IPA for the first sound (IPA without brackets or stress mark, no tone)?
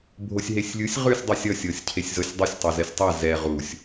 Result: bʱ